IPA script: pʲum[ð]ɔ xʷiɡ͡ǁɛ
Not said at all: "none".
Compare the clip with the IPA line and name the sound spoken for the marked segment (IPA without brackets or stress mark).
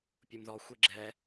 ð